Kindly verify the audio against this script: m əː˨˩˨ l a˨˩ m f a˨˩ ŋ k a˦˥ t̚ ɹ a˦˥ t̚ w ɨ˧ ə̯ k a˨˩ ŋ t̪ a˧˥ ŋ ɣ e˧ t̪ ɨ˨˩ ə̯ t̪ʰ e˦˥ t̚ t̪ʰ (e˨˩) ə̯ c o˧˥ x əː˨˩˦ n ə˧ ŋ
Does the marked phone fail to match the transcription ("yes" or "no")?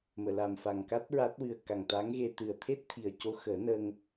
yes